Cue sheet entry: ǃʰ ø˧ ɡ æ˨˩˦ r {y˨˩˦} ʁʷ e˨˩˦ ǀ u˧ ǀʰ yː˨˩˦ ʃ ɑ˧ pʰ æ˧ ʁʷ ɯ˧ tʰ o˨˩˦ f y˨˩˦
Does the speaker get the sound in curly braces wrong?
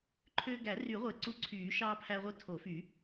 no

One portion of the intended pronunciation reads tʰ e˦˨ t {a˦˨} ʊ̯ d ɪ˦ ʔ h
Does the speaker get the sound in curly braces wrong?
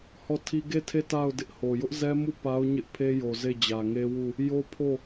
no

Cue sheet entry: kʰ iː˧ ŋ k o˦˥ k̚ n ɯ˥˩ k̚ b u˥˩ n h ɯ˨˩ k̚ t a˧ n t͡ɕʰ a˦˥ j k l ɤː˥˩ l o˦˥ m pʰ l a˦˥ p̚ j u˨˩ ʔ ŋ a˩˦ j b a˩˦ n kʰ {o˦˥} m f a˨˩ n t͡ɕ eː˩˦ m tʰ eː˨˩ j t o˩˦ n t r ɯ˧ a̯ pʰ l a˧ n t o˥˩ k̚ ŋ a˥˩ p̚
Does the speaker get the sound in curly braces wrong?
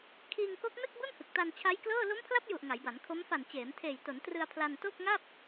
no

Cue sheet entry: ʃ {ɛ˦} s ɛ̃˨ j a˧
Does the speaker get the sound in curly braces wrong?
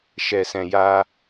yes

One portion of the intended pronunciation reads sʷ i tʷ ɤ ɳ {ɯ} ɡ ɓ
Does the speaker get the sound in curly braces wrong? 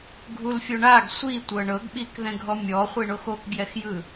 yes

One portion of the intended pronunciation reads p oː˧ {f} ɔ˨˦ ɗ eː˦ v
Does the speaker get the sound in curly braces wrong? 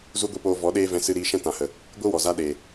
yes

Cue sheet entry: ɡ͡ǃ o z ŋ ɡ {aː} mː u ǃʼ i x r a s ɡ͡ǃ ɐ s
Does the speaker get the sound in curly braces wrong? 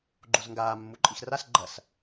no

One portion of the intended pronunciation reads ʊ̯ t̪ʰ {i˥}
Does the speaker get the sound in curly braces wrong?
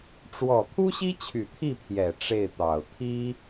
no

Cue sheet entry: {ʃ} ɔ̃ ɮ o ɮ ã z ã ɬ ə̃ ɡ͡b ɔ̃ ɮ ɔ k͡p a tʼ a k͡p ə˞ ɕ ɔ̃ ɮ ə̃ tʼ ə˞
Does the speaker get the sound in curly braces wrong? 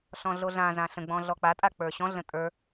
yes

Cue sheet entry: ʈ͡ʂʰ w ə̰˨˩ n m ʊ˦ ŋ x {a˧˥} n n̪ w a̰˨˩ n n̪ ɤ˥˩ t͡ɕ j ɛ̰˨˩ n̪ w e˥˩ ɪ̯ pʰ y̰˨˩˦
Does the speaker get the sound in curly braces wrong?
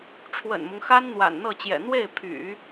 yes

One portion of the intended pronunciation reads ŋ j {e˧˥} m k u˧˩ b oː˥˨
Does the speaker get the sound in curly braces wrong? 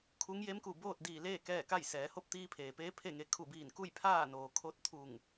no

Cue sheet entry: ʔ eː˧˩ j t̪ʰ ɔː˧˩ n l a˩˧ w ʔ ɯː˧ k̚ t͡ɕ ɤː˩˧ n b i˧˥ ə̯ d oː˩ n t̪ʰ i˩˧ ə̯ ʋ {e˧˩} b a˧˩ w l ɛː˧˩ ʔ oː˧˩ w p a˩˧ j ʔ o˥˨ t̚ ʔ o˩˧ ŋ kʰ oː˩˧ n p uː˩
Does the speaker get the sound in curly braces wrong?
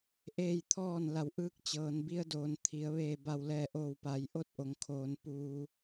yes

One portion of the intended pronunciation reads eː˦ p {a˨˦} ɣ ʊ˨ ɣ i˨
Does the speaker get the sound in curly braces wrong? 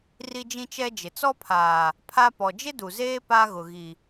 yes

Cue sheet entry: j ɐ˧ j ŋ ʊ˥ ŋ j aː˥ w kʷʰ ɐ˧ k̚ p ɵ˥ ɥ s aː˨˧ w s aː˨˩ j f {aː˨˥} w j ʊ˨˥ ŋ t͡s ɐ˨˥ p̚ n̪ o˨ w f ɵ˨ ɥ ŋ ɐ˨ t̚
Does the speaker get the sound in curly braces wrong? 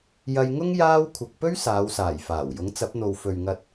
yes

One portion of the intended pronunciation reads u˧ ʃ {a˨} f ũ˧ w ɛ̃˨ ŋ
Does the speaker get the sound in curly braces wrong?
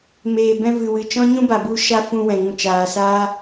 yes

